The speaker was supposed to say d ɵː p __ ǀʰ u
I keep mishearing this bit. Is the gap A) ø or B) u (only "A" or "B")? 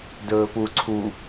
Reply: B